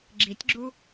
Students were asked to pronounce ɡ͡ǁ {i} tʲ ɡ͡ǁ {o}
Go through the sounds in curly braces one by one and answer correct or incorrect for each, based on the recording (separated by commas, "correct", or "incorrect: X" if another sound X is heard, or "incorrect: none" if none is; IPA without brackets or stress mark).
correct, incorrect: u